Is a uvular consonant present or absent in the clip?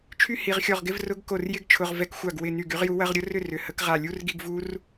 present